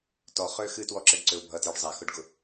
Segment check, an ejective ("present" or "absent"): absent